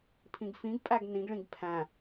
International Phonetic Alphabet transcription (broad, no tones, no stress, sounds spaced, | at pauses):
pʰ ĩ ɡ f ĩ ɡ pʼ æ ɡ n ĩ ɡ ɭ ĩ ɡ pʰ æ̃